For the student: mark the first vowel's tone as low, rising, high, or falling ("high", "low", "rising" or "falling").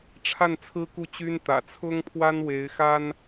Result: falling